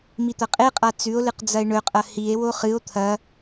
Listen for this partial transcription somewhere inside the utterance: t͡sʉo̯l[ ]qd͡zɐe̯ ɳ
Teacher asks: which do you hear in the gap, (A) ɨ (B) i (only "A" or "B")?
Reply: A